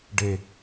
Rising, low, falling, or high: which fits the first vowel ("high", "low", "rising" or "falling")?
low